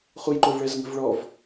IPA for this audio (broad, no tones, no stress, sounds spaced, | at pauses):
χ u j ǃ ʊ v ɭ ɛ z ŋ ə̤ v ɭ ɔ v